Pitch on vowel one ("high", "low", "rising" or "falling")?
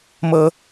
high